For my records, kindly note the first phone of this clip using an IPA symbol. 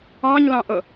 ɑ̃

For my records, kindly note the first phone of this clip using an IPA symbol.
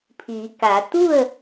pʰ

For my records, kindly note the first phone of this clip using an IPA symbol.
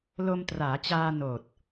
l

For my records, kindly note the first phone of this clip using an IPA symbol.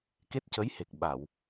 k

